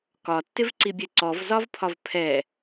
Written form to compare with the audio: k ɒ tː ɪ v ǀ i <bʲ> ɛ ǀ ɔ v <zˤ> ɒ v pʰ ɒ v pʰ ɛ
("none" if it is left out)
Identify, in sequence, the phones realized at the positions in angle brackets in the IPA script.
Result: bʲ, z

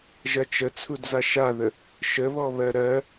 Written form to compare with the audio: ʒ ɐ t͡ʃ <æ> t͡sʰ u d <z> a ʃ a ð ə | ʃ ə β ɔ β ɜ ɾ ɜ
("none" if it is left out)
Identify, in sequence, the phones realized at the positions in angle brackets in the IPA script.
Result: ə, z

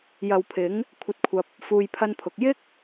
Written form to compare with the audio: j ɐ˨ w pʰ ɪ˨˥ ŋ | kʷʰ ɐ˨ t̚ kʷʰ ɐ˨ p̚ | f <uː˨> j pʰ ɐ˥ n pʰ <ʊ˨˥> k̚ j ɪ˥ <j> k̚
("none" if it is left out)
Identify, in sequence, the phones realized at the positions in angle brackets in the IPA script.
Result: uː˧, ʊ˨˥, none

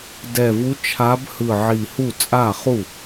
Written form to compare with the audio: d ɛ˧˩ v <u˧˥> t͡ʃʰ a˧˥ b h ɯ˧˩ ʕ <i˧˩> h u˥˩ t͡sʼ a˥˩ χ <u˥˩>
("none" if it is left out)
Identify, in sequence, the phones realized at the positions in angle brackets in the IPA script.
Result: u˧˥, i˧˩, u˥˩

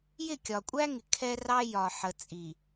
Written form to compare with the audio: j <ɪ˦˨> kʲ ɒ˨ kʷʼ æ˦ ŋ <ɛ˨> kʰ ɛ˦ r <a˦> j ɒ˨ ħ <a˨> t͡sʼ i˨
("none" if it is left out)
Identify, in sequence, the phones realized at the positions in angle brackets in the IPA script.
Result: ɪ˦˨, ɪ˨, ɑ˦, ə˨

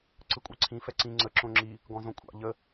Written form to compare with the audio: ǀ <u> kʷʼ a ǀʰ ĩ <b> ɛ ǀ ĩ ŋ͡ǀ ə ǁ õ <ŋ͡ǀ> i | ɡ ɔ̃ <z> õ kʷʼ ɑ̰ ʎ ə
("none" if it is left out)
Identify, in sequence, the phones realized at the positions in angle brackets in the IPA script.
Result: ɯ, f, ŋ͡ǁ, z

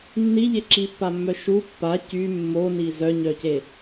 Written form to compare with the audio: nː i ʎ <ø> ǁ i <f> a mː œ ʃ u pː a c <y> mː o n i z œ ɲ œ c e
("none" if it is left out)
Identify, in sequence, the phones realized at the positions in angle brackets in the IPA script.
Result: e, pː, y

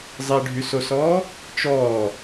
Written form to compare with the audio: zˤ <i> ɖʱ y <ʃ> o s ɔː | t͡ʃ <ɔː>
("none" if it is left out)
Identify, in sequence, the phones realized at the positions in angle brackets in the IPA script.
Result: e, s, ɔː

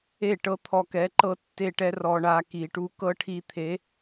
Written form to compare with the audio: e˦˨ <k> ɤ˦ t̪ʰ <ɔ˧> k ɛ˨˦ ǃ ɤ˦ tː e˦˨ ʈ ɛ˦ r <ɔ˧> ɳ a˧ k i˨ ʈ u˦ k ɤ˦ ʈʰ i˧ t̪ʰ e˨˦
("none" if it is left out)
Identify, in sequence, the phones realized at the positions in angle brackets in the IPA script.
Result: ʈ, ɔ˧, ɔ˧

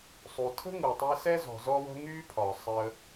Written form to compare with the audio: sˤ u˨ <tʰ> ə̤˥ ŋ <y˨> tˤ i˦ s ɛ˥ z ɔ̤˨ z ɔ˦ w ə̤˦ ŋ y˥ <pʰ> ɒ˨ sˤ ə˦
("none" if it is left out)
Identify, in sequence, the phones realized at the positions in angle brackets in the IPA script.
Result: tʰ, u˨, pʰ

